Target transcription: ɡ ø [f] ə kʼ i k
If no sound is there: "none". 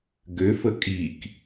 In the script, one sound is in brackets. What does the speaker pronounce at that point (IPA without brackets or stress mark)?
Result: f